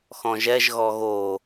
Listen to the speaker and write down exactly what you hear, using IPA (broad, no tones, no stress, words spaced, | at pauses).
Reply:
xɔ̃ʒɛʒ ɣɔɣo